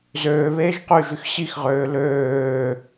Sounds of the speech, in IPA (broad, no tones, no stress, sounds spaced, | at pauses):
z øː β eː ʒ q y ʒ y x ɕ i x ʁ øː l øː